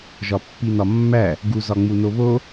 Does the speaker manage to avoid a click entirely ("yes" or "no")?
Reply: yes